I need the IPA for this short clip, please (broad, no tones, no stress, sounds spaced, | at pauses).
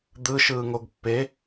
d̪ ɯ ʃ ɯː ŋ o ɡ pː e